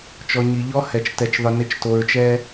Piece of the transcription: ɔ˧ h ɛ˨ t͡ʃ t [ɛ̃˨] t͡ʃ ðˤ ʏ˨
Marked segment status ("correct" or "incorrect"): incorrect